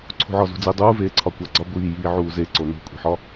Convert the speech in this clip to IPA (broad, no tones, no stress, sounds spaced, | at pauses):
ǀʰ ṳ ʕ ɒ z ṳ d͡z i dˤ uː v eː ǀʰ ɒ kʷ æ ɡ͡ǀ ɒ ɡʷ iː j iː ʕ uː z e ǀ o n ṳ kʷʼ i̤ ħ ɒ